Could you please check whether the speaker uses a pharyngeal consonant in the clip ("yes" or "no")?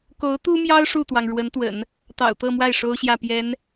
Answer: no